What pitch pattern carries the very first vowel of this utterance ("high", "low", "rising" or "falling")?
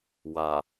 low